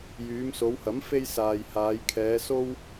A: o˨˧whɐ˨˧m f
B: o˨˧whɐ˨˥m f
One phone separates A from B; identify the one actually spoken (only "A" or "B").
B